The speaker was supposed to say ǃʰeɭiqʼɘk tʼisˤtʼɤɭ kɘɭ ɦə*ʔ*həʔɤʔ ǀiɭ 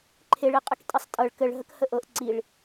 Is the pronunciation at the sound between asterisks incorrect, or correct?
incorrect